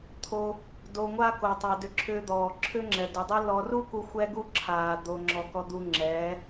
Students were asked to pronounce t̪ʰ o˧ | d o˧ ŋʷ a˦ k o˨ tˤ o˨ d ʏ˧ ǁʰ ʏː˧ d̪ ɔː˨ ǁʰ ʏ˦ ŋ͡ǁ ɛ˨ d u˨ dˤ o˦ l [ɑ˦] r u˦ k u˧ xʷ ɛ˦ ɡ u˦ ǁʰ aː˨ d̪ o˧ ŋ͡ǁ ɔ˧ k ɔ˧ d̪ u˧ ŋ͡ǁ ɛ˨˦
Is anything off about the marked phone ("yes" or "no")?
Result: yes